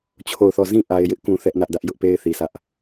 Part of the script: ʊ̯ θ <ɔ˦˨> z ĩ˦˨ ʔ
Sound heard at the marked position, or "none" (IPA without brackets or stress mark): ɔ˦˨